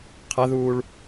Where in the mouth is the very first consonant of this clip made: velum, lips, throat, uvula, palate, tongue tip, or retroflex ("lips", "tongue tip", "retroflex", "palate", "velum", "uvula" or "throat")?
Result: uvula